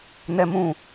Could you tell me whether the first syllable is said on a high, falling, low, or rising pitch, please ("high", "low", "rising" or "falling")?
high